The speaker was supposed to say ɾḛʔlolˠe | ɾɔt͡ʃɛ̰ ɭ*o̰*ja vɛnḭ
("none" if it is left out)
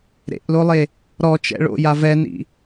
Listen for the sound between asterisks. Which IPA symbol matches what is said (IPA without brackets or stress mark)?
o̰